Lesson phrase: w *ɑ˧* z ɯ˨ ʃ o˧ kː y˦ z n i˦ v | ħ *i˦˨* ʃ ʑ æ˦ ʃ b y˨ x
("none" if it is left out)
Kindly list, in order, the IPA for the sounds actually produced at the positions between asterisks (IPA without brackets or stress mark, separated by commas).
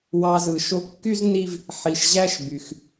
ɑ˧, i˨